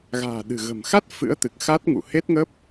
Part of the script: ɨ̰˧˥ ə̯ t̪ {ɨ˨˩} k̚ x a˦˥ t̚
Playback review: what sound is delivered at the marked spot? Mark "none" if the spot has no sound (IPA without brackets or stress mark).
ɨ˨˩